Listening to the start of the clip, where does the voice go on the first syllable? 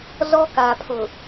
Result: high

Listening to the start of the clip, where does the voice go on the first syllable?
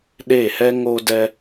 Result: falling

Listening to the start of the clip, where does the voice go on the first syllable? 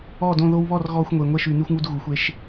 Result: falling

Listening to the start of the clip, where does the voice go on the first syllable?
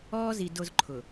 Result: high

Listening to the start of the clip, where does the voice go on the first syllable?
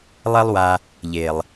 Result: high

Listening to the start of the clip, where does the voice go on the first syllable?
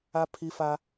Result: high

